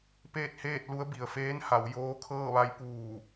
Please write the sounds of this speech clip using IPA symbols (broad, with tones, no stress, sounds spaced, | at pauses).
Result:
p eː˥˨ t̚ h eː˥˨ t̚ l u˧˥ ə̯ b i˩ ə̯ f eː˧˥ n h a˩˧ w j oː˧˥ kʰ ɤː˥˨ ʋ a˧˥ j p uː˧˩